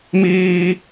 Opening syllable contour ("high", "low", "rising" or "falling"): high